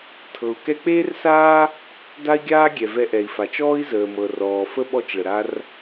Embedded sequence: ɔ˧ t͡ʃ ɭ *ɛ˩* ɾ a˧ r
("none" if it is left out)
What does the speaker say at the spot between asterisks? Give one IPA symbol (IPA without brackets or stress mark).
ə˩